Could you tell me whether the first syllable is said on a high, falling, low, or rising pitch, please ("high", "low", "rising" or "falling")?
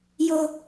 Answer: low